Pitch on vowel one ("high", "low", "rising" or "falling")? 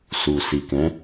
low